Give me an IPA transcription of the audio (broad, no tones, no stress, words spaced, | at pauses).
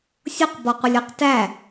sʲʊq bɔqʷɪlʲə˞qtæ